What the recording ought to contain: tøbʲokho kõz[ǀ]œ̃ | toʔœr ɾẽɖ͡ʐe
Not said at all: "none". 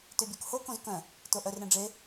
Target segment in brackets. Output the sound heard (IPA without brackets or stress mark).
k